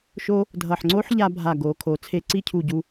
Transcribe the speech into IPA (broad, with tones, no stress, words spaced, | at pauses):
ʃo˥ | dʱʌ˧˩ħ ŋ͡ǀo˥ħʎa˧ bʱa˧˩ ɡo˩˧ kʰo˩˧t͡sʰe˧˩ǀi˥˧ cʰu˧˩ɟu˧